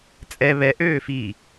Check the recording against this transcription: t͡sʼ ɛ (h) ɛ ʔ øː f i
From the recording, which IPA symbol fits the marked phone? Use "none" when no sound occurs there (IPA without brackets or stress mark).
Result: β